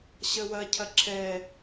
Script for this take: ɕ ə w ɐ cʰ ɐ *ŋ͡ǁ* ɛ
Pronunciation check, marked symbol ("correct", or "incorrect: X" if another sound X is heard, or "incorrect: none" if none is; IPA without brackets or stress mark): incorrect: ǁʰ